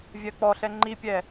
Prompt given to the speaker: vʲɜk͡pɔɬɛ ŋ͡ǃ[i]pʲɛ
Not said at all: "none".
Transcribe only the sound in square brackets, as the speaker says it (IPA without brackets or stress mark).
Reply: i